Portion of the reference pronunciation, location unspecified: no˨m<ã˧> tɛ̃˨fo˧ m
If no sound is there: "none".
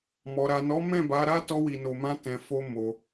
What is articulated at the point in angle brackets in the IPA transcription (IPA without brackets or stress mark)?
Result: ã˧